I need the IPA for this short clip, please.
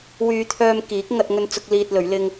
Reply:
w yː˧ t̪ʰ œː˧ m k iː˨˥ k̚ ŋ ɐ˧ t̚ ŋ ɵ˧ n t͡s ʊ˧ k̚ l iː˧ t̚ l ɵ˨˥ ɥ l ɪ˥ ŋ

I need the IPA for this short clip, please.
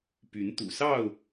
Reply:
p y˨˦ n t̪ ṵ˨˩ s ɑ˥˨ ʊ̯

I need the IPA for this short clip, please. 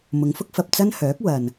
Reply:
m ʊ˨˧ ŋ f ʊ˥ k̚ f ɐ˨ p̚ t͡s ɐ˥ n h œː˨˥ k̚ w ɐ˨ n

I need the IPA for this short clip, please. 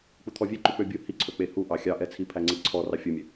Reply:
k͡p u t̪ʰ ɔ vʲ e ǃ y k͡p ø bʲ u h i ǀʰ ɵ k͡p e h u ʔ ɑ xʲ ɑ ʔ ɛ t͡sʰ i pʰ æ ŋ͡ǀ i ǀʰ ɔ r ɑ fʲ o mʲ ø

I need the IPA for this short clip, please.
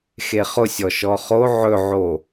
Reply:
x e χ ʊ sʲ ɔ ʃ ɔ χ o ʕ ɵ ʕ o

